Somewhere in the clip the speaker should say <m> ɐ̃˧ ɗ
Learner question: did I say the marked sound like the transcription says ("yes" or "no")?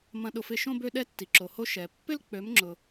yes